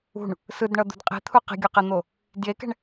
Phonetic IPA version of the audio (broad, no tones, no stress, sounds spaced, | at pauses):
ṳ ɳ | s ɯ d ɳ ʌ d̪ ṳ d qʼ i̤ t̪ʰ u q i̤ ɡʲ o q e n̪ o | d j e k ɛ̤ ɳ